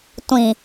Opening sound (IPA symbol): tʷ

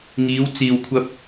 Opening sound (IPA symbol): ŋ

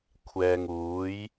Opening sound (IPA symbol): kʷʰ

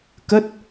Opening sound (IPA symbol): k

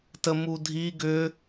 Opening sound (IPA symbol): t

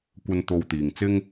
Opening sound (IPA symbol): kʷ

